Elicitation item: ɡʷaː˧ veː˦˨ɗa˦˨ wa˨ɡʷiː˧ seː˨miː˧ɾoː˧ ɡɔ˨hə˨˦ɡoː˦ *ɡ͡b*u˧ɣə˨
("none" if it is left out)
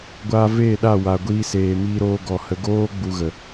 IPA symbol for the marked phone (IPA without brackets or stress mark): ɡ͡b